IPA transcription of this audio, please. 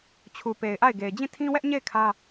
t͡ɕʰ u˨ p e˨ ɪ̯ ʔ a˦˨ ɪ̯ ɡ e˨ ɪ̯ d͡ʑ ĩ˦˨ tʰ ĩ˦ w ɛ˦ ʔ ɲ e˦˨ ɪ̯ kʰ ä˦

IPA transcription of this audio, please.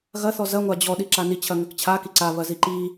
ɣ ɐ θ ɔ z ɐ ŋʷ a d͡ʑ ɔ ɗ i ǁ a n i t͡ɕʰ ɐ ŋ ɐ k t͡ɕʰ a k i ǀ a β ɐ z i ǃ i

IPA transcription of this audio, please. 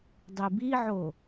dˤ i b i ʕ o

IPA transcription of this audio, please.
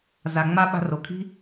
z a˨ ŋ͡m a˦ ɓ a̤˧ r o˨ kʰ i̤˦

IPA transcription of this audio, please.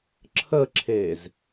ǁʰ ə ǁʰ e z

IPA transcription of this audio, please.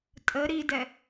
tʼ ə ɾ i d ɛ

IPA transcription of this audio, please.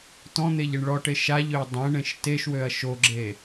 t ɔ̃ n̪ e ʎ e ɳ ɭ ɔ ʈ e ʃ a ʎ ø ɐ̯ dˤ ẽ ɳ ẽ ʃ t e ʃ w ø ɐ̯ ʃ o ɡ͡ǁ e

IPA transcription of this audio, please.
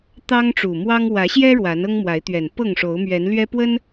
t̪ ɑ˦ ŋ ʈ͡ʂ u˨˩ m w ɑ˦ ŋ w ä˨˦ ɕ j ɛ˦ ɻ w a˨˦ n ɤ˦ ŋ m w a˨˦ ɪ̯ t̪ ɥ ɛ˨˩ n p ɤ˥˨ ŋ ʂ o˨˦ ʊ̯ m ɥ ɛ˨˦ n l ɥ ɛ˦ p w ə˦ n

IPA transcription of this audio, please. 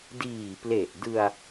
d iː˨˩ p l e˨˩ ʔ d ɯ˧ a̯

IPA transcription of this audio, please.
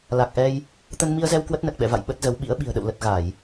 l a˨˩ k̚ ʔ ɛ˧ j | t̪ ə˧ n m i˧ ə̯ z ɛ˧ w k w ə˦˥ t̚ n ə˨˩ t̚ ɓ ɛ̰˧˨ v a̰˧˨ j ɓ ə˦˥ t̚ z ə˨˦ w ɓ ḭ˧˥ ə̯ ɓ i̤˨˩ ə̯ ɗ ə̰˧˨ w l ə˨˩ t̚ ɣ a˧˩˨ j

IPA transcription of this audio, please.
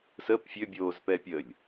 s ə p fʲ ø bʲ oː z p ɛ pʲ ə lʲ

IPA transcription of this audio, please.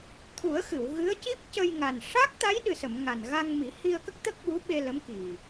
t̪ʰ u˨˩˦ ə̯ x ɨ˨˩˨ w ɣ ɨ˧˥ ə̯ c i˦˥ p̚ c ə˧ j ŋ a˨˩ n ʂ a˦˥ k̚ t̪ a˧˥ j ɗ ɨ˨˩ s ə˨˩˨ m ŋ a˨˩ n ɣ a˧ ŋ m i˨˩˦ h i˧ ə̯ k ə˦˥ k̚ t̪ ə˦˥ k̚ ɓ u˧˥ ɓ e˧ l ə˧˥ m k i˨˩

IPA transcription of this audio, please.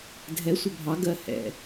dʱ ɛ sʷ ɛ bʱ ɑ ɡ ɜ h ɛ̰

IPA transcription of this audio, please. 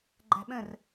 ɡ͡ǃ æ̤ ɓ ə̃ r

